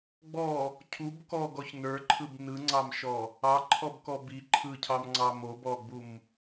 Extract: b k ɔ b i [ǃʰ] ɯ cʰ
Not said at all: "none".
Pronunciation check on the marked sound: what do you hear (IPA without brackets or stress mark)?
ǃʰ